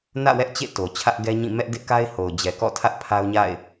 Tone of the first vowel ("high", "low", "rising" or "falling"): falling